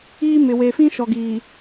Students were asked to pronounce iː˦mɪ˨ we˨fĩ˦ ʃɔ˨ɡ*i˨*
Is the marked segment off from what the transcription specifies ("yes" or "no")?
yes